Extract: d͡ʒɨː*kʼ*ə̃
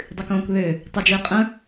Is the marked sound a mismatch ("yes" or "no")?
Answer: yes